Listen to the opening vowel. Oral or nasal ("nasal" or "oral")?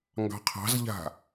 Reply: oral